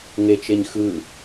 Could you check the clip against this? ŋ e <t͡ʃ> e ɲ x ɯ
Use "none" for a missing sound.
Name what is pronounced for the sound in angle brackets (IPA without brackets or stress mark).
t͡ʃ